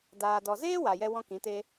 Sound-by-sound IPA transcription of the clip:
d aː˨ d ɔ˨ z eː˦ w a˨ j ɛ˦ w ɔ̃˦ k ĩ˨˦ t e˦

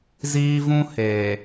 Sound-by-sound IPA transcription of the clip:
z iː˦ v ũ˦ h eː˨

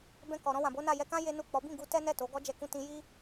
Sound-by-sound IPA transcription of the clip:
b ɛ̃˧ k ɔ˨ ɾ ɔ̃˧ w ã˨ b o˨˦ n a˦˨ j ɛ˧ k ã˦ j e˦ n u˦˨ k͡p ɔ˨˦ b ĩ˦˨ ɡ u˧ t ɛ˦ n ɛ˦˨ t o˨˦ ɡ ɔ˦ d͡ʒ ɛ˧ k ũ˧ t ĩ˧ j i˦

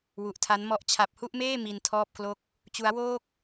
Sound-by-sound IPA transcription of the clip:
w u˨˩ ʔ tʰ a˦˥ n m ɔ˦˥ ʔ t͡ɕʰ a˨˩ p̚ h u˥˩ ʔ m eː˥˩ m i˧ n tʰ ɔː˥˩ p̚ k l o˥˩ k̚ | t͡ɕ u˦˥ a̯ w oː˥˩ k̚

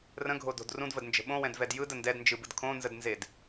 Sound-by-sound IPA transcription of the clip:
r ə̃ ɡʱ o d o̤ d r ũ d v ə d n d͡ʒ ə̤ ɓ õ w ɛ̃ d v ɛ d j ɯ d ə n d ɛ d n d͡ʒ ɯ b ɯ d kʰ õ n z ə d n z e d

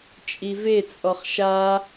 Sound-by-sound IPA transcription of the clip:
t͡ʃʼ i v e t͡sʼ ɔ χ ʃ a

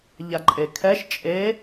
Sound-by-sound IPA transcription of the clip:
ʎ a ǃʼ e kʰ ɛ ʃ t͡ʃʼ e

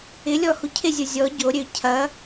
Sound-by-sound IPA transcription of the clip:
ɪ lʲ ɔ h u cʰ ɪ zʲ o zʲ ɔ ɟ o ɾʲ ø cʰ ɐ

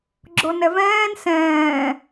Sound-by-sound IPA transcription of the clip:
ɡ͡ǁ o n ɛ v ɛ̃ː n s ɛ̃ː

